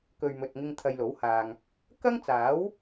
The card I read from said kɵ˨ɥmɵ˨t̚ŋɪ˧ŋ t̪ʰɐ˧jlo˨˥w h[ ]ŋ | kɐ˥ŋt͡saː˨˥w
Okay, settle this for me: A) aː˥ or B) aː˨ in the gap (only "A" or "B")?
B